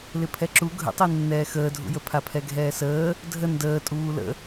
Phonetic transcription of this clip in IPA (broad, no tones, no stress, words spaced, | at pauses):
lɪpʰɛǁu ɡʱə̰tˤenːɛː xəːdʱṵjə pʰapʰɛɡʱɛːsəː | dʱə ndəːtʼuː lə̰